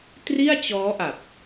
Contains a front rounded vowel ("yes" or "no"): no